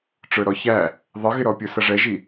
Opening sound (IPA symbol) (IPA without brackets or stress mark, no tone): ʈ͡ʂ